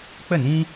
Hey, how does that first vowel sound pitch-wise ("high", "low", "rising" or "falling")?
falling